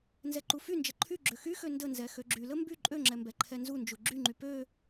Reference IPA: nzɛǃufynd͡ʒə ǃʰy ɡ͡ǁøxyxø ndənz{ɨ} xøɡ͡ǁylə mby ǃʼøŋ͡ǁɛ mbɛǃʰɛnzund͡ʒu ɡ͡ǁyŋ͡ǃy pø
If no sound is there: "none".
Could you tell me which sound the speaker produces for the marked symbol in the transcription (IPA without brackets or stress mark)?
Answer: ɛ